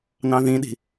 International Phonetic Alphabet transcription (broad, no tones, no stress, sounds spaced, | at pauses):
n ɑ̃ ð ĩ ɗ i̤